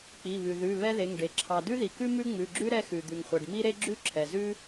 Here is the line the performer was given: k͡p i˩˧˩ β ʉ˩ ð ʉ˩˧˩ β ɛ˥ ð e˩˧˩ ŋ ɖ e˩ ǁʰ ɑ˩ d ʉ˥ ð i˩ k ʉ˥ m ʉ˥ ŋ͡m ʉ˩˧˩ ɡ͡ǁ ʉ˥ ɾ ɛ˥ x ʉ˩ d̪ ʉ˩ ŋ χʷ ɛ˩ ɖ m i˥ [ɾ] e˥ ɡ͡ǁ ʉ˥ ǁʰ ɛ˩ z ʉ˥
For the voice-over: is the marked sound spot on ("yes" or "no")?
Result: yes